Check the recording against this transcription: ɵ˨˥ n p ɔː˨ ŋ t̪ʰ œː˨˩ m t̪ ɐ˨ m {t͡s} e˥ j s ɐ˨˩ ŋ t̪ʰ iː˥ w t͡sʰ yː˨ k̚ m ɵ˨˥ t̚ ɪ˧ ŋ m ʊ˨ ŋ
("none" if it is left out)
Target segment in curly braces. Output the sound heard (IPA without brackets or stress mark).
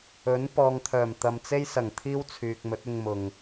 t͡s